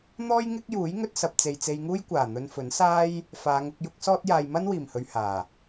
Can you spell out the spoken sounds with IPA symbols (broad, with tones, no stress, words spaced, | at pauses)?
n̪ɔː˥jŋɪ˥k̚juː˨˥j ŋɵ˧t̚sɐ˨p̚t͡se˨j t͡se˧jŋuː˥j kʷaː˨˩n̪ɵ˧nfɵ˨˥n saː˥j | faː˨˧ŋʊ˧k̚ jʊ˥k̚sɔː˥t̚jaː˧j mɐ˥nwiː˨˩mhɵ˨ɥ haː˨˩